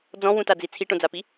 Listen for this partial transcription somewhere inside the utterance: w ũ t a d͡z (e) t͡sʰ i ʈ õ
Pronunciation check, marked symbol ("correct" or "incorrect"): incorrect